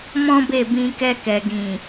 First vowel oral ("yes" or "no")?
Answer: no